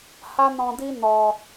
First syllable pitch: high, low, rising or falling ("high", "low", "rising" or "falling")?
high